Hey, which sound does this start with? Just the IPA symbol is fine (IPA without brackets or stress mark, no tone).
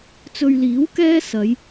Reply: t͡s